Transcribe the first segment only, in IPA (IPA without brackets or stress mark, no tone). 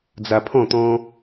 d͡z